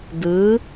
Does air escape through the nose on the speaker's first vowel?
no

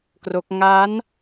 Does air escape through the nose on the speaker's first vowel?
no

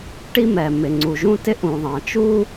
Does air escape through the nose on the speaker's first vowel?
no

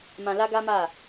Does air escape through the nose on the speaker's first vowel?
yes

